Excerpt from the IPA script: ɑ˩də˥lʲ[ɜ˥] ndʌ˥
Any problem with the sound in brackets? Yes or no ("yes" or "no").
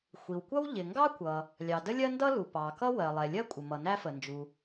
no